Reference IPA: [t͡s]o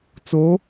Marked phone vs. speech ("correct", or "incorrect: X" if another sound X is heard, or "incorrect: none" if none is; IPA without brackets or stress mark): correct